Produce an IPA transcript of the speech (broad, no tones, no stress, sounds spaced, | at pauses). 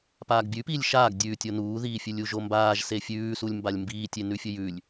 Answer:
p aː ɡ bʲ ʉ p iː lʲ ʃ aː ɡ dʲ ʉː tʲ o n uː ð iː fʲ ɨ lʲ u ʒ o m b aː ʒ s e fʲ ʉː s u lʲ m b a lʲ m b iː tʲ e n ʉ fʲ ɵ j ʉ lʲ